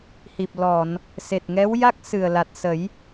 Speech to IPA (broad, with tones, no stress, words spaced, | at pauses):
hi˨˩p̚lɔ˨˩˨n | se˨˩t̚ŋɛ˧˥wja˦˥k̚ sɨ˨˩ə̯la˨˩t̚ sə˨˩˦j